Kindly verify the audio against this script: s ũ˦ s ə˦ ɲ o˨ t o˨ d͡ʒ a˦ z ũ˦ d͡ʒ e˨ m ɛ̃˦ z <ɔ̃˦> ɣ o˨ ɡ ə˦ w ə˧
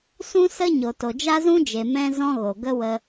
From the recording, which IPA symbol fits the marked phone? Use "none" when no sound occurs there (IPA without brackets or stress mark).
ɔ̃˦